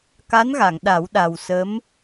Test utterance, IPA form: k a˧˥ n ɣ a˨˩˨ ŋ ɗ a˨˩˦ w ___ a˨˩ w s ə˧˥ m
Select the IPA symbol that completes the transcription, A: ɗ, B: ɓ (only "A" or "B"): A